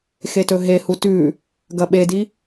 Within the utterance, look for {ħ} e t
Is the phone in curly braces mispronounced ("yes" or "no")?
yes